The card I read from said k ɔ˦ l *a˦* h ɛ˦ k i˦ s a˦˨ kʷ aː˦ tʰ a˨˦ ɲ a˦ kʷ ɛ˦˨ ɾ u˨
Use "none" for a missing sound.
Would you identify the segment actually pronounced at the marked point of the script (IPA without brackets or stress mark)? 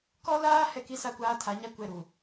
aː˦